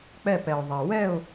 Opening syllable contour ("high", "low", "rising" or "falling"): falling